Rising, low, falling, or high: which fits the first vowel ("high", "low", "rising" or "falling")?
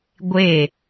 falling